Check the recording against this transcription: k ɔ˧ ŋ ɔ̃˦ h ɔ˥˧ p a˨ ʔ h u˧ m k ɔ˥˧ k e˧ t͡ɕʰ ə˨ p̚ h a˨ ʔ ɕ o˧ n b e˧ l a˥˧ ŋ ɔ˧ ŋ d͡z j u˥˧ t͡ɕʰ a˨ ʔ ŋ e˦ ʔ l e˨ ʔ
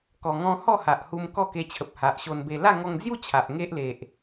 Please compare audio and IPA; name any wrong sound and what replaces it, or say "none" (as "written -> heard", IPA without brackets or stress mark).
p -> h